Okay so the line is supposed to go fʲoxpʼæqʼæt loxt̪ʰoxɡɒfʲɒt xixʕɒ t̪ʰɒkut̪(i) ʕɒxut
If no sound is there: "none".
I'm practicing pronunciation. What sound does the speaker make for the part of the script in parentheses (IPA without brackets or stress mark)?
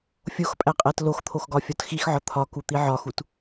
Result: i